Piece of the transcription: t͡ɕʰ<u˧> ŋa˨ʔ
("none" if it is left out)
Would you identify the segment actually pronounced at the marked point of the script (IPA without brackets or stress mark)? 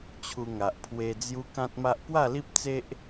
u˧